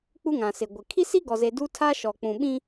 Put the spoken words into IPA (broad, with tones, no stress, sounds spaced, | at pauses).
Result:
k͡p u˦ ŋ ã˨ s ɪ˨ ɡʷ ɪ˨ kʰ i˦ s i˦ ɡ ɔ˨ z e˨ d u˦ tʰ a˦ ʃ ɔ˨ k͡p ũ˨ ɓ ĩ˦